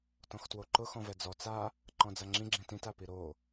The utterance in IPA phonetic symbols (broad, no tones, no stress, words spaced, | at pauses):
tɔ̃xtwoǃʊ xɔ̃vɛd͡zɔ t͡sa | ǃɔ̃d͡zaŋ͡ǁĩ ɡ͡ǁĩtĩt apiɾo